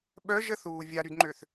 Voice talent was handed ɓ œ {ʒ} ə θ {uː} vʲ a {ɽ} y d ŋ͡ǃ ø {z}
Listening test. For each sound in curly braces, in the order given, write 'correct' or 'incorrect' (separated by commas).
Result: correct, correct, incorrect, incorrect